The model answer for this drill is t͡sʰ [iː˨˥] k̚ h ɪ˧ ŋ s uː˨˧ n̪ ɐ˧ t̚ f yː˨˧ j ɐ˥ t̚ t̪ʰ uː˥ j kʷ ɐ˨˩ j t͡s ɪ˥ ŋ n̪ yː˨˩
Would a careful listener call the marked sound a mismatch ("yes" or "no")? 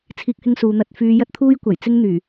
no